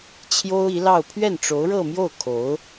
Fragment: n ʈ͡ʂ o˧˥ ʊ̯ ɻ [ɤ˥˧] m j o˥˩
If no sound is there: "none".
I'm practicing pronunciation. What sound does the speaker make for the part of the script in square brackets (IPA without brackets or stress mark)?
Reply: ɤ˥˧